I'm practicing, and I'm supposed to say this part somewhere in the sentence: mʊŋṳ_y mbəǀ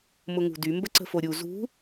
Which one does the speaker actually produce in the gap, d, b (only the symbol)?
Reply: d